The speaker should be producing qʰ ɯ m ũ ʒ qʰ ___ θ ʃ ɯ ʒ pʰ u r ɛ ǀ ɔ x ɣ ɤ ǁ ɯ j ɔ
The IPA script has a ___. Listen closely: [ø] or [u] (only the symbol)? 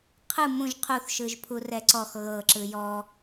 u